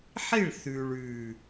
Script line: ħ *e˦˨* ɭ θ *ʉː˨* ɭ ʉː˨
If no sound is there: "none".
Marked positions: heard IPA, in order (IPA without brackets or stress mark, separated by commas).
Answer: i˦˨, ʉː˨